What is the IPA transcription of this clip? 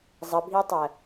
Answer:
zˤ ə bʱ i tˤ ɜ

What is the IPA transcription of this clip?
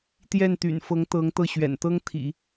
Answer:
t̪ j ɛ˥˩ n t̪ y̰˨˩ n f ɤ˧˥ ŋ t̪ ɤ˧˥ ŋ t̪ ɤ˥˩ ɕ ɥ ɛ̰˨˩ n t̪ ɤ˥ ŋ t̪ʰ ḭ˨˩˦

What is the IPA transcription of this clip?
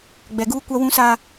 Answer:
ɡ͡b ɛ˨ ɡ uː˦ kʷ a˦ w ũ˦ s a˦

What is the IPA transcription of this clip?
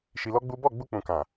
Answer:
ʃ i˧ l ɔ˦ ɡ͡b u˦ b ɔ˦˨ ɡ͡b u˧ k͡p ũ˨ k ã˨

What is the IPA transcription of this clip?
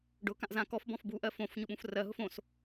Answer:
ɖ ʊ k ã ʔ z ã k ɔ f b ɔ̃ f b u ʔ ɜ f õ f ɲ ʊ ɓ ũ f r ɜ ɦ ʊ f õ s

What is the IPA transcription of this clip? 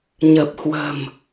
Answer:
ɲ ə˨˩ p̚ h w ə̤˨˩ m

